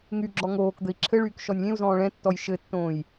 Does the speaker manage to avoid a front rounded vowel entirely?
no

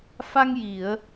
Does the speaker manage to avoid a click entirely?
yes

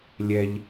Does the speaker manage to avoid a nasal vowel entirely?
yes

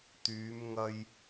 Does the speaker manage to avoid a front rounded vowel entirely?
no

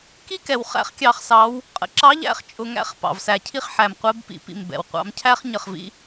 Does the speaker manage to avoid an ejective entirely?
no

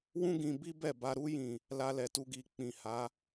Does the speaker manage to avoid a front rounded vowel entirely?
yes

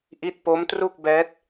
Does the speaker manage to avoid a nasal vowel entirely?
yes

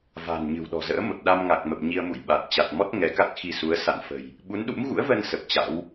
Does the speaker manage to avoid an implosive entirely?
no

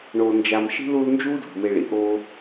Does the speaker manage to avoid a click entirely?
yes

